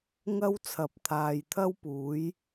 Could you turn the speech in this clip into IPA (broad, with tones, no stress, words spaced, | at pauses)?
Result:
ŋɐ˥w t͡sʰɐ˨˥p̚t̪ʰaː˨jt̪ʰɐ˥wpuː˨˥j